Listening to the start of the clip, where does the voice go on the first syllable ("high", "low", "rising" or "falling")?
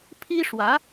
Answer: high